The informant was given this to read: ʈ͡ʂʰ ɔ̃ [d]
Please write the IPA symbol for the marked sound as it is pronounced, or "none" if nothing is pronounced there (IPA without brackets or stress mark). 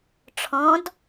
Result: d